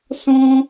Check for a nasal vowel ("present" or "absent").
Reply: present